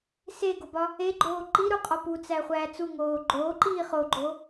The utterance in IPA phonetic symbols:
seɡobɒ | eɡ͡ǃoː ǃiɾuqʼɒ put͡sæχʷæː t͡suŋoː ɡ͡ǃoːǃiː χoɡ͡ǃo

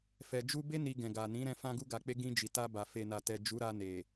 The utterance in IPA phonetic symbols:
fɛ˨ d͡ʒu˧be˦ ni˧ɡɛ̃˨ɡa˨ nĩ˨˦ɾɛ̃˧ fã˧ɡu˧ɡa˨k͡pe˧ ɡĩ˧ d͡ʒi˨ta˧ba˨ fe˨na˨tɛ˨ d͡ʒu˨˦ɾa˧ne˨

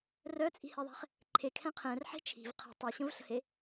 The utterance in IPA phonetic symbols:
rœt͡sʼi̤heðˤɛ̤χ | ǃʰekʰɛ̃ qʰɛ̃rħe̤ t͡ʃʰi̤v qʰə̤ tˤɛɕə̃vɬə̤he

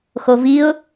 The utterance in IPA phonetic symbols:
xoviʊ̯

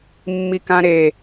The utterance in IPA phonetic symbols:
mːikãɾe

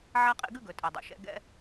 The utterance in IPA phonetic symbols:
ʕa˥qʼḭ˦ɡʉ˥ ɡɵ˨tʼɛ˨dˤo̰˩ʃɛ̰˥ ɡɛ̰˦

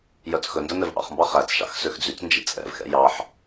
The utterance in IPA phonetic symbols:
jœt͡sxɵndœ nɛvʔɑ̰χmbɑ χæt͡sʃɑ̰x søxd͡zyt͡snd͡ʒḭ t͡sʼɛ̰vxɛ̰ jɑħ

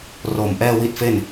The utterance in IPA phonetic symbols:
ro˨˩mʔɛː˥˩ wi˦˥t̚fe˥˩n

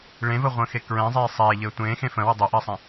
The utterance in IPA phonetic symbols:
ɭẽvəʁʷə̃ːxe kɹɛ̃zˤeː sˤeːʎɘː tʷẽːxẽ fə̃wə dˤəʔɘːsˤɛ̃

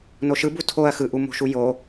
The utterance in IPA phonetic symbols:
noʃɯ butʰoɐ̯ xɯʔumo̤ʃu jo

